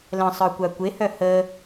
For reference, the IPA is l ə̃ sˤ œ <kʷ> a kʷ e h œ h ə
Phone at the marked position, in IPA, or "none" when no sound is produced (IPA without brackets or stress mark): kʷ